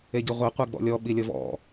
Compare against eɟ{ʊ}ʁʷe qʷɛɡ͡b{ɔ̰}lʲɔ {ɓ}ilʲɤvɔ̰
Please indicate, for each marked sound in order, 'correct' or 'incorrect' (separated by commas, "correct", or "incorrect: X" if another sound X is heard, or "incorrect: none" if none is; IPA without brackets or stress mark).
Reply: incorrect: ɯ, correct, correct